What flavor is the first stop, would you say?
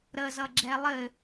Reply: click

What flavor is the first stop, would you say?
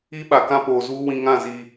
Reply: implosive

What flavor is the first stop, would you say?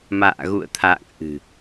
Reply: aspirated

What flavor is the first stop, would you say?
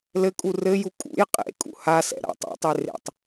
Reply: ejective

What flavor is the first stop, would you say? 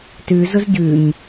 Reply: plain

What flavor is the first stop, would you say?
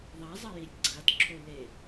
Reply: click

